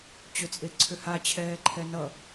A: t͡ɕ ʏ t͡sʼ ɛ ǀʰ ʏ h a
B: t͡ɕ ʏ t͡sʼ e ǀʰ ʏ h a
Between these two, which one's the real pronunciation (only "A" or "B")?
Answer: B